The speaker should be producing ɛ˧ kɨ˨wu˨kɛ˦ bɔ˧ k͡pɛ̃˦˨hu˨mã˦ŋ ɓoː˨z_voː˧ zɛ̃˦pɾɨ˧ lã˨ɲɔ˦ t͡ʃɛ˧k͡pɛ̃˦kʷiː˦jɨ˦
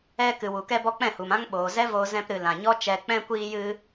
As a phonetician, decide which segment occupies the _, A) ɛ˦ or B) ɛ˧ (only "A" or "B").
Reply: A